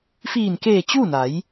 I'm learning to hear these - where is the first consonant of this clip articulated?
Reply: lips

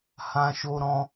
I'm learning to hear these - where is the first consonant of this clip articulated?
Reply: throat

